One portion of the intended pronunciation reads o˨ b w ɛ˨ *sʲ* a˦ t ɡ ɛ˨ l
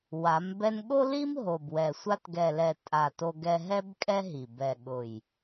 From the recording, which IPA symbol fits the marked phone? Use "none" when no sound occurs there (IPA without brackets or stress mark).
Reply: sʷ